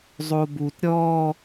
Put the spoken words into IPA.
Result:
zˤobut ɾʲɔ

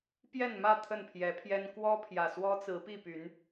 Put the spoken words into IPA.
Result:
pjɛ˥˨nmä˥˨ t̪ʰə˥˨npʰjɛ˨˦pʰjɛ˦n kwɔ˦pʰjä˨˩ swɔ˦t͡sɹ̩˨˦ pi˥˨py˨˦n

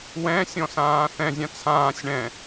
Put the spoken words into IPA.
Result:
wɛ̃ sʲɔ̃sãːθɛ̃zʲã t͡sʰãːsʲ ɳɛ̃

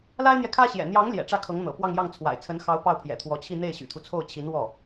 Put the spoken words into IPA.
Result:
la˥ɪ̯n̪jɛ˨kʰä˥ɕjɛ̰˨˩ n̪jɑ˧˥ŋ ljɛ̰˨˩ʈ͡ʂä˥˩kʰɤ˧˥ŋn̪ɤ̰˨˩ pwɑ˥˧ŋjɑ˥˩ŋ t͡sʰwa̰˨˩ɪ̯ t͡sʰə˧˥nxɑ˧˥ʊ̯ pɑ˥˩ʊ̯pʰjɛ̰˨˩t̪ʰwɔ˧˥t͡ɕʰi˥˧ n̪e˥˩ɪ̯ɕy̰˨˩t̪ʰu˦t͡sʰo˥˩ʊ̯ t͡ɕʰi˧˥nwɔ˥˩

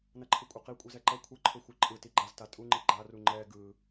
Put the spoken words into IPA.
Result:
nʌǃʰɯkʷʼɯqi kʷʼɯzɛǃʌ kʷʰʌǃʰo xʷɯǃʼɯ tiɡ͡ǃazta tʼuŋ͡ǃi ɡ͡ǃaru ŋ͡ǃɛ ɡɯ

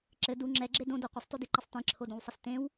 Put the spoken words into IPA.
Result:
ǁɘ du ŋ͡ǁɛɡ͡ǁe dõdo qʷɘsˤtodeǃisˤ tẽǁʰodõwsˤɘs tẽw

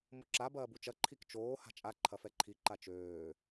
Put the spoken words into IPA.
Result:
moǁa bɐːbut͡ʃɐ ǃʰikt͡ʃoː ha̤t͡ʃʼa ǃʰɐfɛǃʰi ǃat͡ʃøː

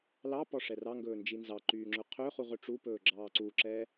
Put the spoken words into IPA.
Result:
lɑpɔ ʂɛrɑŋɡɵː nd͡ʒinzɑǃyː ŋ͡ǁɵqʰøχuʁ ɵʈ͡ʂupɵː ɡ͡ǁɑːǀuǁɛ

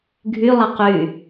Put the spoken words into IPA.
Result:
ɡʱylˠɐ qy

